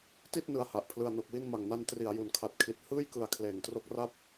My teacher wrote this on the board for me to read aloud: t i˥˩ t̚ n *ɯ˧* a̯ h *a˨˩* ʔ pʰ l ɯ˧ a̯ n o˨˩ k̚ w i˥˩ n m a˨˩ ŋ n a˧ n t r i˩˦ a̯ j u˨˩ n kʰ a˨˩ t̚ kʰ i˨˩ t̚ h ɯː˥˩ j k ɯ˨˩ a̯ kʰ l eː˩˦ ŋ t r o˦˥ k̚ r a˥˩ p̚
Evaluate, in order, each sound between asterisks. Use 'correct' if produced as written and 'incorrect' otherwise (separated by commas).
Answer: correct, correct